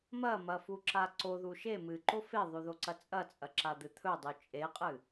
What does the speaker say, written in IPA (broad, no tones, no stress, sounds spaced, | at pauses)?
m ɐ m ɐ f u ǁ a ǀ o ð u ʃ e m ɨ ǃ o f e ðˤ ʉ ð o ǀ ɐ t͡sʼ ɐ t͡sʼ ɐ ǁ a d̪ ɨ t̪ʰ ɵ dˤ u t͡ʃʼ e qʼ ɨ